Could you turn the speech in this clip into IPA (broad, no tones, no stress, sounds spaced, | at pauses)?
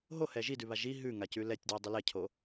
ɦ o h ɛ ʒ i d ʉ β a ʒ i ɦ ʉ ŋ a c ʉ l ɛ tʲ d w ɛ dˤ ʉ l ɛ cʰ o